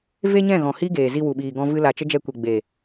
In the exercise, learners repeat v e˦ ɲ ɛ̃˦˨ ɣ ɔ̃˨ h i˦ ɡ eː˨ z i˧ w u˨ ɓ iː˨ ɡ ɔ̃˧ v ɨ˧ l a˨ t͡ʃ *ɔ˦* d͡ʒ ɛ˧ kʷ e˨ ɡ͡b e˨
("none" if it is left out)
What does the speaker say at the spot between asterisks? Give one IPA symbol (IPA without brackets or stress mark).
ə˦